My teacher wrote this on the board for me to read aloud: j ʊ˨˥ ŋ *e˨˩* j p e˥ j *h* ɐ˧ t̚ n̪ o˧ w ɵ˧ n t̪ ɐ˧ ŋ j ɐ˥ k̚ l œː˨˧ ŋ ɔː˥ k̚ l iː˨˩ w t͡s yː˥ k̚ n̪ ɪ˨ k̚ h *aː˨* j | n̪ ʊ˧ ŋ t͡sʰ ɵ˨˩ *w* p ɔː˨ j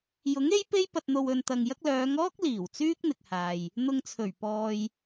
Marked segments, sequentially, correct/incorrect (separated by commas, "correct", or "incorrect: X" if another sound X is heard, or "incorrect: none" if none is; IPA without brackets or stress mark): incorrect: e˥, incorrect: p, correct, incorrect: ɥ